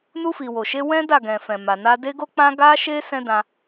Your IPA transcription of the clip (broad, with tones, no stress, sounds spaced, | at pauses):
n u˧ f i˨ w o˨ ʃ e˧ w ɛ̃˦ d a˦˨ ɡ ɛ̃˨ f ɛ̃˨ m a˨ n a˧ d e˦ ɡ o˦ k͡p ã˦ ɡ a˦ ʃ e˦ s ɛ̃˦ d ã˧